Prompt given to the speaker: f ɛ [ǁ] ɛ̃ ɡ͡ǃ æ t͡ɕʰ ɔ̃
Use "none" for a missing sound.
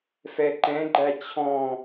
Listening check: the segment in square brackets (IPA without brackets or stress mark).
ǃ